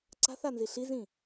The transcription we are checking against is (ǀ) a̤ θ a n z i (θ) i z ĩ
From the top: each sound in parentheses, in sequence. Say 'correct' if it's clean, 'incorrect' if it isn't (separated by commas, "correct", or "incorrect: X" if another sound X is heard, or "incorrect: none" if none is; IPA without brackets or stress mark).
correct, incorrect: ɬ